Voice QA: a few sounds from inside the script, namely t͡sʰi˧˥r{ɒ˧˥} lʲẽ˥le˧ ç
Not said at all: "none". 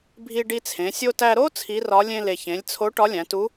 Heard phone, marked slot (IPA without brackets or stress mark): ɒ˧˥